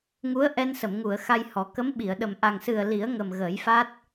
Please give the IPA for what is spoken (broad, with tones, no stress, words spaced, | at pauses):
ŋu˧˥ə̯ ʔɛ˧nsə˨˩˨mŋu˨˩˨ə̯ xa˧jhɔ˨˩˦ kə˧˥mɓi˨˩˨ə̯ɗə˨˩m ʔa˨˩ŋsɨ˨˩ə̯ li˨˩˦ə̯ŋə˨˩m ɣəː˨˩˦jfa˦˥t̚